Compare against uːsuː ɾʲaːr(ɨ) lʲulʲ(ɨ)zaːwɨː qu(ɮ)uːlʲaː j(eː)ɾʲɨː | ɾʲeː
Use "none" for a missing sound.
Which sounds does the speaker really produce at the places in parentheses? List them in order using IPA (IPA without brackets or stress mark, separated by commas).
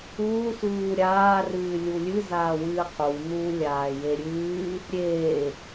ɨː, ɨ, n̪, e